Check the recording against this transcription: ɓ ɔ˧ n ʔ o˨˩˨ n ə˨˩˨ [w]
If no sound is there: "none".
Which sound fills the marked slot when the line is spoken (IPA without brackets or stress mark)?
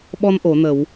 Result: w